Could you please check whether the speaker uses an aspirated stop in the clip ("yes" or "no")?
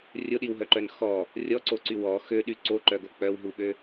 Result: no